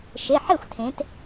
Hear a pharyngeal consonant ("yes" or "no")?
yes